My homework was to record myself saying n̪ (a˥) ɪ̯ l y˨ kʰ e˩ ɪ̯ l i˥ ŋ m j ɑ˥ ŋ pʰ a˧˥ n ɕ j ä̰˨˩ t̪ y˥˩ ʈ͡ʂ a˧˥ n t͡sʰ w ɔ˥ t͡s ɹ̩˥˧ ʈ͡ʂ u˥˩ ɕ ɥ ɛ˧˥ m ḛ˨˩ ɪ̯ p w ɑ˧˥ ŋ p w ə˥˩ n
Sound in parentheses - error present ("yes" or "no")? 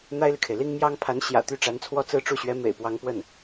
no